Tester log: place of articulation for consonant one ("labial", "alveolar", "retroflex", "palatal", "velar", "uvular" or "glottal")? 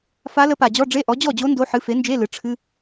labial